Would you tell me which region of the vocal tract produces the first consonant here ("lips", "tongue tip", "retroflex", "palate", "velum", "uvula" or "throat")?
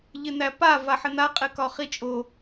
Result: palate